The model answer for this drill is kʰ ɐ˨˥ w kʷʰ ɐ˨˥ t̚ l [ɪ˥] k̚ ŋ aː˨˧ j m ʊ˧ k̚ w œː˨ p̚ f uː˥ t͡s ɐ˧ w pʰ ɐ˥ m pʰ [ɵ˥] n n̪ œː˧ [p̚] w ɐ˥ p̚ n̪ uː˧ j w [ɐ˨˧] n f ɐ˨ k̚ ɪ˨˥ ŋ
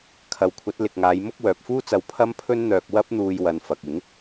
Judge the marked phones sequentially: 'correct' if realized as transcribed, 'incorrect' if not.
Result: incorrect, correct, incorrect, incorrect

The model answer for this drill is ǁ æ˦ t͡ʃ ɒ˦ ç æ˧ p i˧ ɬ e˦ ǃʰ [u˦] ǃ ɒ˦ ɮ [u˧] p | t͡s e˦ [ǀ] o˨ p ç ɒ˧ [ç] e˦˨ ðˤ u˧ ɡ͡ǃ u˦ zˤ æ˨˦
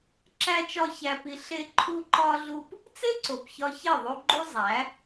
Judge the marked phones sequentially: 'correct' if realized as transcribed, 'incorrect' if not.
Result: correct, incorrect, correct, correct

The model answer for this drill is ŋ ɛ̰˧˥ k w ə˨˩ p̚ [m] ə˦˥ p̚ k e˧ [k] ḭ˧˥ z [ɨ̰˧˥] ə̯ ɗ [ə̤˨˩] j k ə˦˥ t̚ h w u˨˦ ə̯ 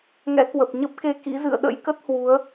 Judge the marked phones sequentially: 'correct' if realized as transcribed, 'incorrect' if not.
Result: incorrect, correct, incorrect, incorrect

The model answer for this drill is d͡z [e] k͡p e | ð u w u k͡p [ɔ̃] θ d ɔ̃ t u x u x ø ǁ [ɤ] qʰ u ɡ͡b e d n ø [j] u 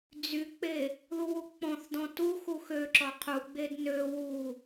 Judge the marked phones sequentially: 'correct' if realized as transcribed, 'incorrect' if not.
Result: incorrect, correct, incorrect, incorrect

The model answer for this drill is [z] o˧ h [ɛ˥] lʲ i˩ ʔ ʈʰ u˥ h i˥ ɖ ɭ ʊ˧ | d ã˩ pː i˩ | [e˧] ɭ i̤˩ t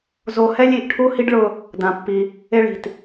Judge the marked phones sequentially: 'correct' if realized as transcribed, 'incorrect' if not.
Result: correct, correct, correct

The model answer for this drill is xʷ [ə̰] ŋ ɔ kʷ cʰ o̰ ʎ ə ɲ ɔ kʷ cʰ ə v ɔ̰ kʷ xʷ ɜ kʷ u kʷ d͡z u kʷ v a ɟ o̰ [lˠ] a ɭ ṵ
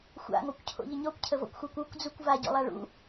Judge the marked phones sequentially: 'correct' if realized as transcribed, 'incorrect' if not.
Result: incorrect, correct

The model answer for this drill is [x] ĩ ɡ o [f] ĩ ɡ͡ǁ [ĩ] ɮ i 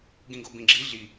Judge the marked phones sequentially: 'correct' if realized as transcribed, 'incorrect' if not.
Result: incorrect, incorrect, incorrect

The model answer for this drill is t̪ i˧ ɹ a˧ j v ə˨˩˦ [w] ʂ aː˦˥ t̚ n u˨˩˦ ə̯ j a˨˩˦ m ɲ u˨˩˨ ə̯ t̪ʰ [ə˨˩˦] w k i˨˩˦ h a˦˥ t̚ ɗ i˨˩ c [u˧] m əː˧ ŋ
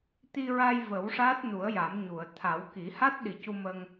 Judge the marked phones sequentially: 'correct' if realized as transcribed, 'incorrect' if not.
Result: correct, incorrect, correct

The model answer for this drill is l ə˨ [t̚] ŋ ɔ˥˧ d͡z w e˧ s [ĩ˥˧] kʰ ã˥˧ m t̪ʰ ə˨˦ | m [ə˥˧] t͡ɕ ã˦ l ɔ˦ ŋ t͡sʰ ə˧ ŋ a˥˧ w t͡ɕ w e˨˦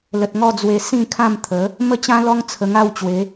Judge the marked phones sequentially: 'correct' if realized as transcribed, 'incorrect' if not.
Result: correct, correct, incorrect

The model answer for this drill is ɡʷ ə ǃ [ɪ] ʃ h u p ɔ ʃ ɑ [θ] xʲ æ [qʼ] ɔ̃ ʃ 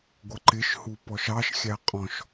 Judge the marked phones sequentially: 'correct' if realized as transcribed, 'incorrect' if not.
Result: correct, incorrect, correct

